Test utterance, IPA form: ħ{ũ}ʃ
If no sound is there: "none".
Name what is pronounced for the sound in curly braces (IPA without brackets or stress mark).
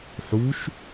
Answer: u